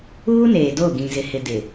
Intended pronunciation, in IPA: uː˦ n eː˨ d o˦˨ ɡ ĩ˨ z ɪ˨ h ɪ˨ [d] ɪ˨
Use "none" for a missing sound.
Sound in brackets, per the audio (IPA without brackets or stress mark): d